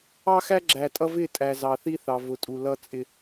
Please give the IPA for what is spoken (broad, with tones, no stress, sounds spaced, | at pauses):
ɑ˦ x æ˦ ɡ͡ǁ æ˨ tʼ ʌ˦ v ɪ˦˨ tʼ æ˨ z ɑ˨ θ i˦ θ ɑ˨ v ʊ˨ tʼ u˨ l ʌ˦ t͡sʼ ɪ˦